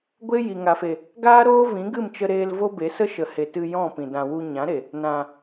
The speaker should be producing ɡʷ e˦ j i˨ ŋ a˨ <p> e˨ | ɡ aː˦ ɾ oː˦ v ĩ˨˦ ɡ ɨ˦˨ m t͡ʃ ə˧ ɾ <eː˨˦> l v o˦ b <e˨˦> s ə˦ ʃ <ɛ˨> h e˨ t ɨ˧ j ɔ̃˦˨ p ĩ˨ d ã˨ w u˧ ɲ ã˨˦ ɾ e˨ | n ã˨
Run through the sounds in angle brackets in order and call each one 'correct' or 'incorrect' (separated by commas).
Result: incorrect, incorrect, correct, incorrect